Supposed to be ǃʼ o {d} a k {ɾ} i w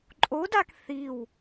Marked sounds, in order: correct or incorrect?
correct, incorrect

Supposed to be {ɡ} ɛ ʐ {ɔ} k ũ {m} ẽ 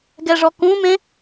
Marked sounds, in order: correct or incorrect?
correct, correct, correct

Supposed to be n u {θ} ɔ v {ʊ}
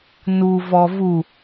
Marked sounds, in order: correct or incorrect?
incorrect, incorrect

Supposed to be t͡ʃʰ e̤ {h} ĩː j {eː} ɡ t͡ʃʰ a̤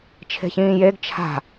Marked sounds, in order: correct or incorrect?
incorrect, incorrect

